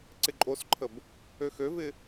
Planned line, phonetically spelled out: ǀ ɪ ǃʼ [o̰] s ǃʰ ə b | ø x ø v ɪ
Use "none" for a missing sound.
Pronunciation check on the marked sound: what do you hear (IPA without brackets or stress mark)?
o